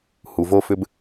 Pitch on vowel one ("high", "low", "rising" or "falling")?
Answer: low